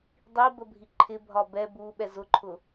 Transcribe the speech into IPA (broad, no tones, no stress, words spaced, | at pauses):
dˤibəbʱi ǃʰɪbʱɒ bɛ buɓɛ zʊǃʰʊ